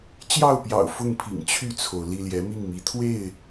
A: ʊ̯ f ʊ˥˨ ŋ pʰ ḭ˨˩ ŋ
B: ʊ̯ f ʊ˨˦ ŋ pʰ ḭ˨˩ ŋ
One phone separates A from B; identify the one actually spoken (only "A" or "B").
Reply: A